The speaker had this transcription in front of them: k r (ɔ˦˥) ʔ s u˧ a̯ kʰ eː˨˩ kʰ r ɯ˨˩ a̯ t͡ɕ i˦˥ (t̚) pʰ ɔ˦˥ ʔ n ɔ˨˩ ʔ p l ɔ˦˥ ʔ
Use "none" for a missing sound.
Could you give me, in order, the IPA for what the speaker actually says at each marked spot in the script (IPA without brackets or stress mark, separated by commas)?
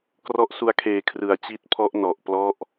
ɔ˦˥, t̚